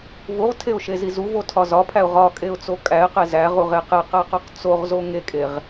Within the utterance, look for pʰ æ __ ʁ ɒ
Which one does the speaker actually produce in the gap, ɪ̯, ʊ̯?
ʊ̯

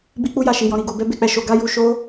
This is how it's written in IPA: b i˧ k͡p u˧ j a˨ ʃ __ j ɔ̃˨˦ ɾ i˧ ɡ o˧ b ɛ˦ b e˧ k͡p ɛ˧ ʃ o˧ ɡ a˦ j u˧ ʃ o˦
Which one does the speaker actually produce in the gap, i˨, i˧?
i˨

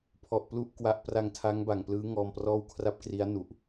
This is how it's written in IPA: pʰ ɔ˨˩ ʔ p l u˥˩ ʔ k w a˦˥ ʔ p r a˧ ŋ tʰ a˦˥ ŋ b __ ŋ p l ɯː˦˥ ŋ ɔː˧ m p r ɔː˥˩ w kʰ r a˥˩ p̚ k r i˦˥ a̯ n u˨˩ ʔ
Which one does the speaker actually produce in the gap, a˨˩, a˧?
a˨˩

